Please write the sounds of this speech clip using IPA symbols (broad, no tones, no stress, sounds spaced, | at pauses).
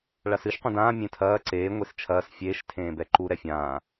ɭ a s ɨ ʃ qʷ ɐ̃ d ãː mʲ ẽ tʰ ɐː ǀ eː ŋʷ e s t͡ʃʰ ɐː s fʲ eː ʃ tʰ ẽː b ɛ ǃ u ɾ ɛ fʲ ãː